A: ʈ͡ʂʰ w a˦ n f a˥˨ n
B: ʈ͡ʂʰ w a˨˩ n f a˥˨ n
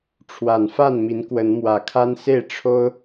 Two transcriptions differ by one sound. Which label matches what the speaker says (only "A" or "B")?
B